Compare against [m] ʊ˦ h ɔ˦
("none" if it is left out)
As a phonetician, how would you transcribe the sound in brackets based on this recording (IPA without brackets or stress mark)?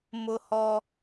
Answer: m